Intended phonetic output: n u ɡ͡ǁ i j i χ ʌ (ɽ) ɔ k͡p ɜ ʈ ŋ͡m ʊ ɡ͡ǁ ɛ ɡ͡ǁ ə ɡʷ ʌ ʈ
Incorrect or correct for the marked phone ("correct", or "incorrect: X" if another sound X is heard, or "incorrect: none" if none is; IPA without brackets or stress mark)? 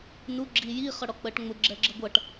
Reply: correct